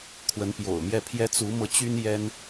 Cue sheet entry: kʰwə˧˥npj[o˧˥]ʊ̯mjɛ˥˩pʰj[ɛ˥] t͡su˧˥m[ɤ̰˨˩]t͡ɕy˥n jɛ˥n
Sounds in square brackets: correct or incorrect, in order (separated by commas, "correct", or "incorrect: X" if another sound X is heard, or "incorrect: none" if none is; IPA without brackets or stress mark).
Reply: incorrect: o̰˨˩, correct, incorrect: ɤ˧